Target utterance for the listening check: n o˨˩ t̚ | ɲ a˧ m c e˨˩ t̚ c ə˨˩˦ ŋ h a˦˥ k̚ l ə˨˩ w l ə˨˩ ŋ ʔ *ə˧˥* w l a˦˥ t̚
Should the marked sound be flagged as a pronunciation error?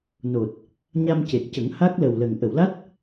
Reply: yes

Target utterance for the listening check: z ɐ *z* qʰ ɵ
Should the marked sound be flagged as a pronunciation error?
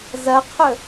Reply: yes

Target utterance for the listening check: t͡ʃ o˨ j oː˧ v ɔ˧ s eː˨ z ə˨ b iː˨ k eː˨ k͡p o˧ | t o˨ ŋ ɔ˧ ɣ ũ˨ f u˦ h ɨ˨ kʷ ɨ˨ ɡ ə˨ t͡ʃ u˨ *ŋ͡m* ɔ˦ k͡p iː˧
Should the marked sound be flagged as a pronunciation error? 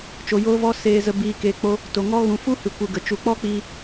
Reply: yes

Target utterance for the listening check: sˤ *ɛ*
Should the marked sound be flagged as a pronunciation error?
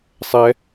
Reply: no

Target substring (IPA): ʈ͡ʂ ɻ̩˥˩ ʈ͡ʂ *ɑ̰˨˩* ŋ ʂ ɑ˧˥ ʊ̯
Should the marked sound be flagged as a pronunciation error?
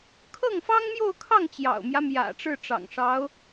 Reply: no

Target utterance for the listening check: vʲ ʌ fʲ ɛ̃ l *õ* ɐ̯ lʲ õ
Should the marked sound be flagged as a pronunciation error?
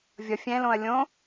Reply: no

